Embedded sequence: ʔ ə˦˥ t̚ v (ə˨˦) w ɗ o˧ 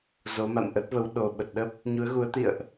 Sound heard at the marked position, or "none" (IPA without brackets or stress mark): ə˨˦